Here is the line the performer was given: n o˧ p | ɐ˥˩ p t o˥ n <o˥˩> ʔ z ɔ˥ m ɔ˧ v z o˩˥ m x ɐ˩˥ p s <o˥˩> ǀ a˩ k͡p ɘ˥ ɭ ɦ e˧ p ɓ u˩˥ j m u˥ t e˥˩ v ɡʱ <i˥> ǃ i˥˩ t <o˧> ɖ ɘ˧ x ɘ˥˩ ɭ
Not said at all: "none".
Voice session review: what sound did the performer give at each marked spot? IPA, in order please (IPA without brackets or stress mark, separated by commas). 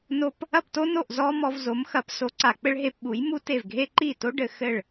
o˥˩, o˩˥, e˥, o˥